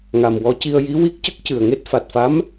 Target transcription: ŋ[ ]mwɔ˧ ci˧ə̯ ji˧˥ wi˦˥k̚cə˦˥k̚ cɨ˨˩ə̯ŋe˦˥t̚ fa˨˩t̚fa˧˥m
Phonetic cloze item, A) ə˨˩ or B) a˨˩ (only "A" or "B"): B